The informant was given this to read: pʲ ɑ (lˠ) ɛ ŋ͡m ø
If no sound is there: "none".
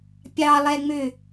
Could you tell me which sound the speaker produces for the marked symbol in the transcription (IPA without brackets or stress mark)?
lˠ